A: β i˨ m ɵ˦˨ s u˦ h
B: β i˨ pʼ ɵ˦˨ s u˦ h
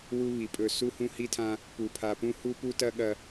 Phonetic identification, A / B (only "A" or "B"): B